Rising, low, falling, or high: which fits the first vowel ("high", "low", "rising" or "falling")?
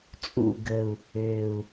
low